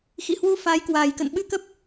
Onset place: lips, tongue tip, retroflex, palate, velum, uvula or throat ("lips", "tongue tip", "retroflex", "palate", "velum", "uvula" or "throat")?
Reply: velum